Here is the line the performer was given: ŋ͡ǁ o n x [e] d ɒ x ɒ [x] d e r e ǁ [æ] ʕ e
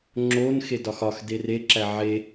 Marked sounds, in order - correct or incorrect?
correct, correct, correct

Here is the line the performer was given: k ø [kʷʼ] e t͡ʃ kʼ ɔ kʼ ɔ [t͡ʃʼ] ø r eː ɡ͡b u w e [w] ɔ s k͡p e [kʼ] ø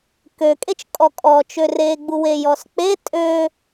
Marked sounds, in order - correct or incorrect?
incorrect: kʼ, incorrect: t͡ʃ, incorrect: j, incorrect: tʼ

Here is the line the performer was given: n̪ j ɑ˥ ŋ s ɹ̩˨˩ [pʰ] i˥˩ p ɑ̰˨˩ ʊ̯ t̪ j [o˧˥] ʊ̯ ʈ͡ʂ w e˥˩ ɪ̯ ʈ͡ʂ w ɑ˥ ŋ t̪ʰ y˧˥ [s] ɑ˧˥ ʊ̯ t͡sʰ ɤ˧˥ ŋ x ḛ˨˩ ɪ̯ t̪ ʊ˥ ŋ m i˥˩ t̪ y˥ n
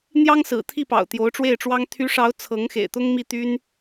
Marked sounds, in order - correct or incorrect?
incorrect: t̪ʰ, correct, incorrect: ʂ

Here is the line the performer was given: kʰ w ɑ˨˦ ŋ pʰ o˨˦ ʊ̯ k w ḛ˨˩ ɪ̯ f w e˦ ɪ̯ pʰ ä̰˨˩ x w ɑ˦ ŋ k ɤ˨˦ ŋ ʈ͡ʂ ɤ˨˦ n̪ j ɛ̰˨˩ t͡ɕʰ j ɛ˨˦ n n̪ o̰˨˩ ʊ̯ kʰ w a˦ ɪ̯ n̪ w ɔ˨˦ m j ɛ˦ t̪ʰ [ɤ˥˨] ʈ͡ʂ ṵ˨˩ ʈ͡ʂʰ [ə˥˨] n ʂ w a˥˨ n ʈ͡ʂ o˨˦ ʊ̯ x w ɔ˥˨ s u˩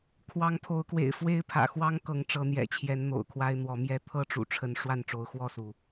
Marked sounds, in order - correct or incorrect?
incorrect: ɤ˦, incorrect: ə˨˦

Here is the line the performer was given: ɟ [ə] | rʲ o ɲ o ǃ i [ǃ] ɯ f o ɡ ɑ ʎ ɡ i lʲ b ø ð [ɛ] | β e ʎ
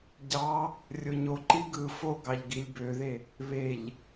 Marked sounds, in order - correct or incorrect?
incorrect: ɑ, incorrect: ɡ, incorrect: e

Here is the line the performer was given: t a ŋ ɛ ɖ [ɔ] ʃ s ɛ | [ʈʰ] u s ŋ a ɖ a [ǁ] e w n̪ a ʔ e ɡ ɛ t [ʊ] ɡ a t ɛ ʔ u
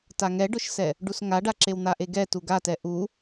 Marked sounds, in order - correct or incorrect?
incorrect: ʊ, incorrect: ɖ, correct, incorrect: u

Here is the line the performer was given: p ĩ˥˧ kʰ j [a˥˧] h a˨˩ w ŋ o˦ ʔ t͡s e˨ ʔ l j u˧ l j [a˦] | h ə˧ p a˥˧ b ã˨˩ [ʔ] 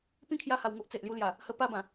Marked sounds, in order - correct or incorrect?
incorrect: a˧, incorrect: a˨˩, incorrect: none

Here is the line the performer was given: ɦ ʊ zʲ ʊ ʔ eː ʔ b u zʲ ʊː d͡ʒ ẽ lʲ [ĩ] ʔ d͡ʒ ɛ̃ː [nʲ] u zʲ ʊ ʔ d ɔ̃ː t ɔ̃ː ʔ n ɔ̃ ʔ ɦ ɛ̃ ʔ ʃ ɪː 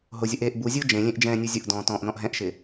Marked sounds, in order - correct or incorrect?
incorrect: ẽ, correct

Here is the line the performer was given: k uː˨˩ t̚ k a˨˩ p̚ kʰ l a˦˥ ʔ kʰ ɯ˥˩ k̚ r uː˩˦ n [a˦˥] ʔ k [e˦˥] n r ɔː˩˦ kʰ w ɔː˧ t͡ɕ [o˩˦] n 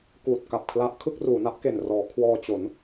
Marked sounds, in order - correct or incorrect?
correct, incorrect: e˨˩, correct

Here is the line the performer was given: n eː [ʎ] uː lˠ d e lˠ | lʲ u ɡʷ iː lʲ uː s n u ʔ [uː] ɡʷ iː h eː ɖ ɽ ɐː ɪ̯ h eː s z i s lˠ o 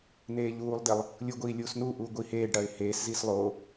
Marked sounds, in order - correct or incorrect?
correct, correct

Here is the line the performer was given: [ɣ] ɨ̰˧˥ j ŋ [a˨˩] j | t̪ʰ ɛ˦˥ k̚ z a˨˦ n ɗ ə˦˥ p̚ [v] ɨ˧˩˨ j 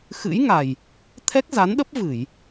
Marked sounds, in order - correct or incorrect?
incorrect: x, correct, correct

